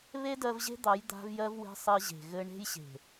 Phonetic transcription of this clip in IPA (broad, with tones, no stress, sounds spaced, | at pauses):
β e˦ d ɜ˧ v ʑ e̤˦ d̪ ɑ˨˦ j d̪ a̤˧ v j ɜ˧ v w e̤˧ sˤ ɘ˧ ʑ e̤˨ ɣ ɘ˧ ɳ e̤˦ j ɕ e̤˨